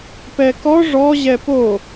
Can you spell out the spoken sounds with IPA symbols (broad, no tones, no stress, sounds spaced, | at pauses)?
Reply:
p ɛ k ɔ ʐ ɔ ʑ ɛ p o